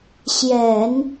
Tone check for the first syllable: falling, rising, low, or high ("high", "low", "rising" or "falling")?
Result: low